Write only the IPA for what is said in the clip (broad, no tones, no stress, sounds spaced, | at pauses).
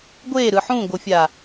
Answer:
ɡʷ e ɾ ɯ ħ ũ ɡʷ ɤ fʲ a